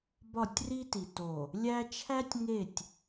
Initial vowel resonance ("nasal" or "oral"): oral